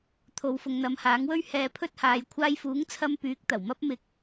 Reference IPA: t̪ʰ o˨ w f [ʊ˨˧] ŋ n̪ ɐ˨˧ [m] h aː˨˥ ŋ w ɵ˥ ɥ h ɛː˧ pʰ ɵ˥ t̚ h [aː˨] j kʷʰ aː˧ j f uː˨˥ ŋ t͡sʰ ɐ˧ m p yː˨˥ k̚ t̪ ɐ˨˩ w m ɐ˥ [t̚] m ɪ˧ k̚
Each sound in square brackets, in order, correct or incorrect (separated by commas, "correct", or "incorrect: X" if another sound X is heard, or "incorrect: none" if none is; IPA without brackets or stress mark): incorrect: ʊ˧, correct, incorrect: aː˨˧, incorrect: p̚